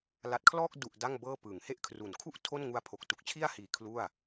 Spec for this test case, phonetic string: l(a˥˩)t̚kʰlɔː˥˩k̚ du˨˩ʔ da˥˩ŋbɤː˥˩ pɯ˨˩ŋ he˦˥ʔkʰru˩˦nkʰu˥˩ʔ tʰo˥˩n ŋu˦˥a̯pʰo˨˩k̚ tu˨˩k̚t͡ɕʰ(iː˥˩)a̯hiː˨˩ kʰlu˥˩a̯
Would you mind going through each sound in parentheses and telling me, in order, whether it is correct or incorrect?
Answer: incorrect: a˨˩, incorrect: i˥˩

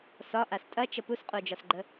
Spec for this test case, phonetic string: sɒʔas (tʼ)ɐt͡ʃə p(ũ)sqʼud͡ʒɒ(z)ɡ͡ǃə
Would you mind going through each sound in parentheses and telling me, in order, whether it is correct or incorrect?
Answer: correct, incorrect: u, incorrect: s

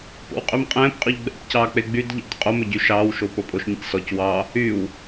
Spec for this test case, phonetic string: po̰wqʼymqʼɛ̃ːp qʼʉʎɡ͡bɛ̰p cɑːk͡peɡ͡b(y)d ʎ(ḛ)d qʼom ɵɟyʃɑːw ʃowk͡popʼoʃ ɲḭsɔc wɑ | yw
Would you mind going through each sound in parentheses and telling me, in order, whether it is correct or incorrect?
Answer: correct, incorrect: ɛ̰

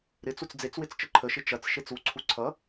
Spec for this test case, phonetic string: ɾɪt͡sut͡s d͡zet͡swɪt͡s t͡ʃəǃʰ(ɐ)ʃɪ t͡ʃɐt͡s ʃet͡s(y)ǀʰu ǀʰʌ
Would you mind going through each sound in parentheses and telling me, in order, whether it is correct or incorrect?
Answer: incorrect: ə, incorrect: u

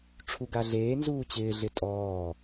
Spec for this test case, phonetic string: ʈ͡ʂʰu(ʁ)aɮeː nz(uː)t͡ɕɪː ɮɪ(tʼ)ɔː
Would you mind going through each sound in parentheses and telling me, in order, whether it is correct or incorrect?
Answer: incorrect: ɡ, correct, correct

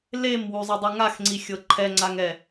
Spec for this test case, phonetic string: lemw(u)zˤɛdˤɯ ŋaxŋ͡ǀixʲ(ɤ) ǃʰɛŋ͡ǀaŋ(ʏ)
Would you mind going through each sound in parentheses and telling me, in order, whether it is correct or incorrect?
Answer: correct, correct, incorrect: ɛ

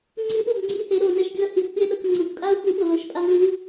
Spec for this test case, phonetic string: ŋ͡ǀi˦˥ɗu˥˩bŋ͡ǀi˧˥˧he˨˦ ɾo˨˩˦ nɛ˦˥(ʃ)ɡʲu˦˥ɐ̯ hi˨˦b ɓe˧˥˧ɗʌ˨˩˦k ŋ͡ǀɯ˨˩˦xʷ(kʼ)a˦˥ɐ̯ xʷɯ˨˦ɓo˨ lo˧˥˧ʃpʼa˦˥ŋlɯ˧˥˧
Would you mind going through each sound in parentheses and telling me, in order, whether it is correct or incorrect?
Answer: correct, correct

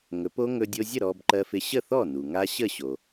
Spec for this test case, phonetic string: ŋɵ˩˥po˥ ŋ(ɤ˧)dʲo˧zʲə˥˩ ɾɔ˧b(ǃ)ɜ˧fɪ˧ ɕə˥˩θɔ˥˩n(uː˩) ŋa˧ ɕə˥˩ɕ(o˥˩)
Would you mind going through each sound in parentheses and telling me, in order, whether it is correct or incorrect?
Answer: incorrect: ɵ˧, correct, incorrect: u˩, incorrect: o˩

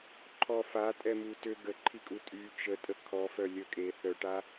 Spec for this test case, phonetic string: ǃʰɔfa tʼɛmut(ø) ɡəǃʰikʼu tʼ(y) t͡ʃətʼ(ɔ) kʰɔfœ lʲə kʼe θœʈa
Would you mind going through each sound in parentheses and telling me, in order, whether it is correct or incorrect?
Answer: correct, correct, incorrect: ə

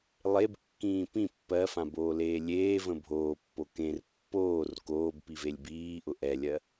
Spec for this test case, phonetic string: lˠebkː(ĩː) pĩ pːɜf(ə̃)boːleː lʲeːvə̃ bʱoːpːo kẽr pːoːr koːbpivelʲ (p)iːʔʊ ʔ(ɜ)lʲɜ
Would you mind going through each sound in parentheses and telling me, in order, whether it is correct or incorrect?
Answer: correct, incorrect: ã, incorrect: b, incorrect: ɛ

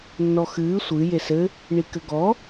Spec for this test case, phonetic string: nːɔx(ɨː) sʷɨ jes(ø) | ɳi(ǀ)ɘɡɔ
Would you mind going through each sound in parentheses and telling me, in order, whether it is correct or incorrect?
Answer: correct, incorrect: ɘ, incorrect: k

